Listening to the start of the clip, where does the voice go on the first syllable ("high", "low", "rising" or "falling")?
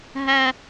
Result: high